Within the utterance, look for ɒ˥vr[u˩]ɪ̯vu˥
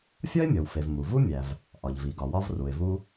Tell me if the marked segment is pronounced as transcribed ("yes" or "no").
yes